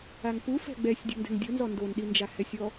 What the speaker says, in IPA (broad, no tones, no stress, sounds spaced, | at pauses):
a ŋ p u f ɛ̤ ɡ͡b ɛ sʲ dʲ ṳ n d ɛ̤ ŋ dʲ o n z ɔ n d o n ɗ i n d͡ʒ a h ɛ sʲ ɔ